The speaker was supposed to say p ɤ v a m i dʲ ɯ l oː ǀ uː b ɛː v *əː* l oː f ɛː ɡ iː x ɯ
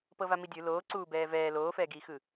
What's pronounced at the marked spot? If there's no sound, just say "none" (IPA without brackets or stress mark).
ɛː